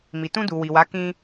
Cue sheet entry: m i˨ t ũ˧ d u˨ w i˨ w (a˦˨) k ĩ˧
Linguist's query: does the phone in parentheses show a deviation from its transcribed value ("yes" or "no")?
yes